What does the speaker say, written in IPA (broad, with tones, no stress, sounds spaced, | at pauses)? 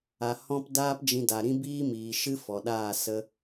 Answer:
a˨ h ɔ̃˦ p d aː˦ p d͡ʒ ĩ˧ d a˨ ɾ ĩ˦ b iː˦ m iː˨ ʃ ɨ˦ f ɔ˨ ɗ aː˦˨ s ə˦